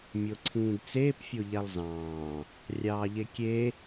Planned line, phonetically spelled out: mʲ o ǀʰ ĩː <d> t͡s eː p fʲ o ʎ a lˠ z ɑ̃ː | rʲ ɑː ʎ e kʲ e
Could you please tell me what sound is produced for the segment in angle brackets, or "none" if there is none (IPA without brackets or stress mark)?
d